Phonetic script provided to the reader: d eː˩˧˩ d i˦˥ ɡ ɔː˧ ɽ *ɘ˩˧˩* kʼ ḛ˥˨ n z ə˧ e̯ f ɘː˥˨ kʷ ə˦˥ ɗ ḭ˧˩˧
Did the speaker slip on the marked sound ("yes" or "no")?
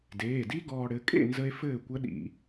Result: no